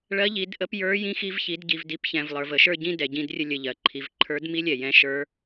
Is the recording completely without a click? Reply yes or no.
no